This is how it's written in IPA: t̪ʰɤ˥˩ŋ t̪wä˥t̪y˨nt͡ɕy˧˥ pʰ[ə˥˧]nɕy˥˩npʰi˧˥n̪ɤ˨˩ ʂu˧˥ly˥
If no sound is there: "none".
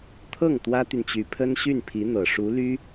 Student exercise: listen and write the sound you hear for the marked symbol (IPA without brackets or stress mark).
ə˥